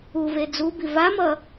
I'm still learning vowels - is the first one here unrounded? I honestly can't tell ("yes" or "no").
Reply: no